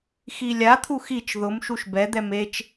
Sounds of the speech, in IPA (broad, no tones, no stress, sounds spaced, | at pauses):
x i lʲ a t̪ʰ u x i t͡ʃ ð ʊ m ʃ u ʃ b ɛ d̪ ɛ m e t͡ʃ